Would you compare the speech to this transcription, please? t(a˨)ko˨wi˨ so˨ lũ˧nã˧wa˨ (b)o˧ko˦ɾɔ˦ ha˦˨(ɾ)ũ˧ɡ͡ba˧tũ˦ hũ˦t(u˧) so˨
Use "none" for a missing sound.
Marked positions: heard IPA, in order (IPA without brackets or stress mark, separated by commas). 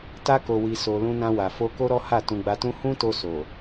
a˧, f, t, o˧